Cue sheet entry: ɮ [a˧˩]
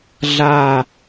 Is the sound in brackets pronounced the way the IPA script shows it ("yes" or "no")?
yes